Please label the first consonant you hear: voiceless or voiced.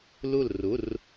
voiced